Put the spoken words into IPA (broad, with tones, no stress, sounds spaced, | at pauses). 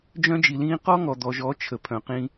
d͡ʒ œ̃˦ d͡ʒ i˨ l ĩː˦ q ɔ˦ ŋ ɔ˨ d̪ ɔ˨ ʒ ɔ˨˦ t͡ʃʰ ə˨ pʰ œ̃˨ q ĩ˧